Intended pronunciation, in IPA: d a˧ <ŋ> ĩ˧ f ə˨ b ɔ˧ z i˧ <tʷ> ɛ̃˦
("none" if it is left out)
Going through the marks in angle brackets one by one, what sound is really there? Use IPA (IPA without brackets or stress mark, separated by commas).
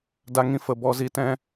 ŋ, t